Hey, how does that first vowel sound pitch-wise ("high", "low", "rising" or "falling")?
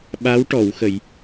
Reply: rising